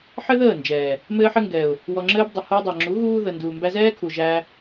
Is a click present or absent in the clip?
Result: present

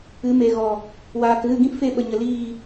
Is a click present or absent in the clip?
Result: absent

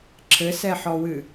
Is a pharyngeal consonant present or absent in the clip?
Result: present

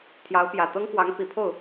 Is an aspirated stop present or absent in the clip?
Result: present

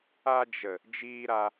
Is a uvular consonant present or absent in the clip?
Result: absent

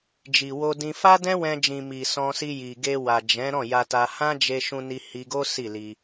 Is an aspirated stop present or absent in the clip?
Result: absent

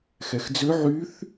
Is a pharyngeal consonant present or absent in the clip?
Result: present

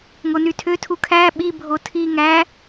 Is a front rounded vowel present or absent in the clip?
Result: present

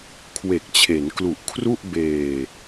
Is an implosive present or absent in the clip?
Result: absent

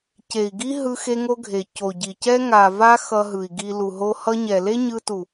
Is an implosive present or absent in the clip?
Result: absent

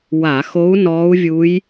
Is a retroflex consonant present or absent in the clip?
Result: absent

